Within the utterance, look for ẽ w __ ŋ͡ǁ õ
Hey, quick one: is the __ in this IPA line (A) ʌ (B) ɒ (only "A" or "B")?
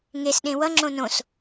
A